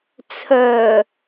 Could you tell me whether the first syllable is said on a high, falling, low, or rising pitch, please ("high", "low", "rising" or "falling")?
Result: low